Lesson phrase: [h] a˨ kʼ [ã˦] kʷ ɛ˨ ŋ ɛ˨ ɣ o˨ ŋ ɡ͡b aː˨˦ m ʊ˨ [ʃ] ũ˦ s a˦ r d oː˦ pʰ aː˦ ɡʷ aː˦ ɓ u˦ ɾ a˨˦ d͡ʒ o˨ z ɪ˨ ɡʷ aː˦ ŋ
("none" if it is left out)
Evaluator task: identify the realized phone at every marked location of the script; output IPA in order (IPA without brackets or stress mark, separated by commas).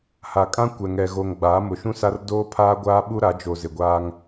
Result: h, ã˦, ʃ